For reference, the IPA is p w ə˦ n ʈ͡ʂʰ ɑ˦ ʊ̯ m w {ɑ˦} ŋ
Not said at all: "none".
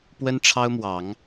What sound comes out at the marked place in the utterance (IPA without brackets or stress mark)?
ɑ˨˦